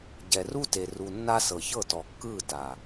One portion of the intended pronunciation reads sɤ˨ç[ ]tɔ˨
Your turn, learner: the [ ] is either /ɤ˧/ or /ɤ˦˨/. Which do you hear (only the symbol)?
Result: ɤ˦˨